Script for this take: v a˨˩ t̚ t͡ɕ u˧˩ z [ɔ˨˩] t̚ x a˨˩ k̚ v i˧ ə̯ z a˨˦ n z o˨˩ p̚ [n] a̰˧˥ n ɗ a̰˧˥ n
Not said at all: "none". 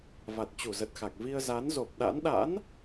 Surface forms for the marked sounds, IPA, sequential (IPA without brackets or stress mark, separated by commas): ə˨˩, ɗ